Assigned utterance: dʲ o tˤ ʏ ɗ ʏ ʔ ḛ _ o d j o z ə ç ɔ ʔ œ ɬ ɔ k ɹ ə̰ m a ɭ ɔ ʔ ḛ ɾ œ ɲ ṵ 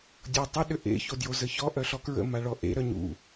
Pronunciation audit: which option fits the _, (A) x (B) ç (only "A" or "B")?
B